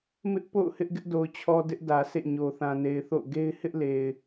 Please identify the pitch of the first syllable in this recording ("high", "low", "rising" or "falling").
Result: high